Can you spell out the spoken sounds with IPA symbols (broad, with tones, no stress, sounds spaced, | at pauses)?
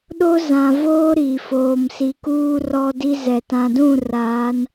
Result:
ɗ o˦ z ã˨ v oː˦ ɾ i˨ f oː˨ m s i˨ k uː˦ r ɔ˦ d i˦ z ɛ˨ t ã˨ d ũ˦˨ r aː˨˦ n